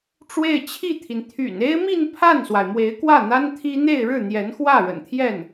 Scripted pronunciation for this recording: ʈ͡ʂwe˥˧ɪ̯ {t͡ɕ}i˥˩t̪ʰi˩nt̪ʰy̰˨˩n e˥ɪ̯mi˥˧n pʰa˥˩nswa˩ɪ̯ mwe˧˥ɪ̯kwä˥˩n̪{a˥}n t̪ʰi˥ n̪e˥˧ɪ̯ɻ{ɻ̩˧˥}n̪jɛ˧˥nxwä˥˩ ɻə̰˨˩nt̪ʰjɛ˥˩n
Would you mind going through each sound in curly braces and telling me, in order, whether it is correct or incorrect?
incorrect: t͡ɕʰ, correct, incorrect: ɻ̩˥˩

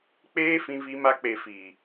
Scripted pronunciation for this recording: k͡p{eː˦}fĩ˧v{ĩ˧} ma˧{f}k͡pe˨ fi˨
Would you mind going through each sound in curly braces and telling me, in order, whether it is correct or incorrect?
correct, incorrect: i˧, incorrect: none

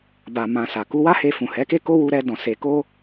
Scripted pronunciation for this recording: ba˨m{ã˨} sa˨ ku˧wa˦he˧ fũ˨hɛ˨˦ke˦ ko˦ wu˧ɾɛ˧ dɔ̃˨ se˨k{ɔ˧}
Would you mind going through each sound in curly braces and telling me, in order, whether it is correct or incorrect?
correct, incorrect: o˧

